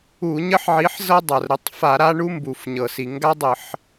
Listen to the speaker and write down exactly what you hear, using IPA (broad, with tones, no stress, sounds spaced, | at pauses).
u˧˩˧ ɲ ə˦ ħ ʕ i˨˥ ħ z ɤ˦ dˤ a˩ r ɾ ə˨˥ tˤ f a˧˩˧ ɾ a˦ ɳ u˦ m b u˩ f ɲ ɤ˩ s i˩ ŋ ɡ a˦ dˤ ə˧˩˧ ħ